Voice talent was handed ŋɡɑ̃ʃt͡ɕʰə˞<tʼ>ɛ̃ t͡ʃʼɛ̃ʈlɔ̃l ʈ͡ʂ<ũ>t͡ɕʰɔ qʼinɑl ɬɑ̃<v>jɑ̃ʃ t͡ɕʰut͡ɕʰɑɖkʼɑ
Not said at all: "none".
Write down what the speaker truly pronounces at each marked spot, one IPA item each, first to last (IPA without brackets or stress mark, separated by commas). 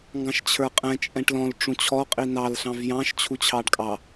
qʼ, ũ, v